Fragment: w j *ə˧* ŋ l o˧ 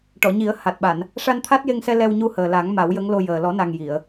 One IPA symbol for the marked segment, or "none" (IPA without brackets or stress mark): ə˧˥